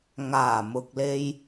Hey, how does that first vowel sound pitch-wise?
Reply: low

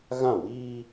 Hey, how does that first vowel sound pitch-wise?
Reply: falling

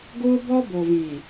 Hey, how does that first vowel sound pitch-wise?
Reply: high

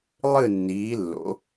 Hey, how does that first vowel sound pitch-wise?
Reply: falling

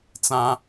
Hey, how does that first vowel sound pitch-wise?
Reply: high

